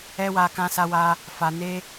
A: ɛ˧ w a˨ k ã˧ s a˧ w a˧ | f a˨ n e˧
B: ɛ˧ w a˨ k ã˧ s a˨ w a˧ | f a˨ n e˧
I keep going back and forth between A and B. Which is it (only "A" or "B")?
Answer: A